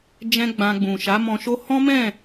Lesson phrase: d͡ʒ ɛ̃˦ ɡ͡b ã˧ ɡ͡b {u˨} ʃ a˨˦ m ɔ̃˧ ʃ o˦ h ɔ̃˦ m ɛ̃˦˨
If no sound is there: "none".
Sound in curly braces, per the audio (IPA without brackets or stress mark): ũ˨